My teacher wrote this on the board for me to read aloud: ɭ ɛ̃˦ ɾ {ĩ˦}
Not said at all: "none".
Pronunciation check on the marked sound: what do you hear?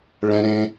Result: ẽ˦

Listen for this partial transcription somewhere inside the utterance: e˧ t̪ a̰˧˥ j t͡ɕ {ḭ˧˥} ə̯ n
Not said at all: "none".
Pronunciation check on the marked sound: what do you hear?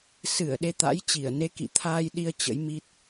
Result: i˧˩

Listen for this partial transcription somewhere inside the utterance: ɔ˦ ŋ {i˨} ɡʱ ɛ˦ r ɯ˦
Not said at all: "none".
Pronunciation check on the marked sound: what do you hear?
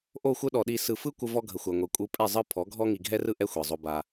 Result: i˨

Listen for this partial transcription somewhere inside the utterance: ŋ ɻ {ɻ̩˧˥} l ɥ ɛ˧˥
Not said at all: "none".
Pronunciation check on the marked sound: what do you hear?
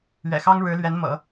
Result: ɻ̩˧˥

